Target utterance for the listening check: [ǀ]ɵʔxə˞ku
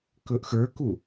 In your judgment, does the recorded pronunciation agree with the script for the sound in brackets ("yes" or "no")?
no